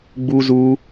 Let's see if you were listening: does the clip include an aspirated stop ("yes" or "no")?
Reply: no